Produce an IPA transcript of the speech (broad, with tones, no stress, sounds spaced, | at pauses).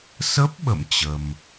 s ə˦˥ p̚ ɓ ə̰˧˨ m t͡ɕ ə˧ m